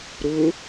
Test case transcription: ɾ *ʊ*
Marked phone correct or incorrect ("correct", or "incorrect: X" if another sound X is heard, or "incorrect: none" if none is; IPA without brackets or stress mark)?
correct